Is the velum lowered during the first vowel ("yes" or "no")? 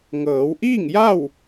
no